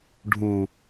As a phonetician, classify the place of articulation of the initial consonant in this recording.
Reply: retroflex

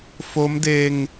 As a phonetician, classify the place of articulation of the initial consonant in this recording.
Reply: labial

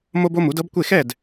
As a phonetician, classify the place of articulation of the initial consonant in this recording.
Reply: labial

